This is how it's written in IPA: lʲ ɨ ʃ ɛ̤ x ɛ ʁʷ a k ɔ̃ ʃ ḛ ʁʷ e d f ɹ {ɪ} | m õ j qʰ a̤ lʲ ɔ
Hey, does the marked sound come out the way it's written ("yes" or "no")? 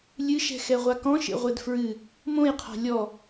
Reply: no